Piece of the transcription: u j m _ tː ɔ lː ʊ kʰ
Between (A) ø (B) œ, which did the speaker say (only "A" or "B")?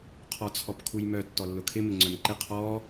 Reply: B